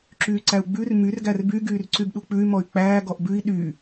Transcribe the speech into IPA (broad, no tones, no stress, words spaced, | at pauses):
ǁyːǀæu̯ɡ͡bʉr myr ɡærby ɡyːrǀybɗuk͡pʉy̯ mɔy̯k͡pæː ɡɔʔbʉi̯ ɗyː